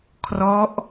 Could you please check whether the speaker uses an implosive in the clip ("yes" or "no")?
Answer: no